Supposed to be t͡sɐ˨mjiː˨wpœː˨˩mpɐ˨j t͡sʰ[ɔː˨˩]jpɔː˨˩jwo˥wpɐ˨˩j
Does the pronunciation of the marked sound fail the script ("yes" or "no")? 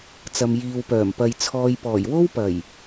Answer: yes